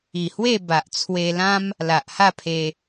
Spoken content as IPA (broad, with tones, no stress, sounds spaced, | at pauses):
i˨˩ h w e˥˧ b a˨ ʔ t͡sʰ w e˧ l ã˦ m | l a˨ ʔ h a˥˧ pʰ e˧